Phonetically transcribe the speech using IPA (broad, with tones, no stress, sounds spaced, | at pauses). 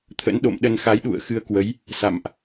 t̪ʰ ə̰˧˥ n ɗ o̰˧˨ m ɗ ə˧ n x a˨˦ j ɗ ṵ˧˨ ə̯ x ɨ˧ ə̯ k w ə˨˦ j | s a̰˧˨ m ʔ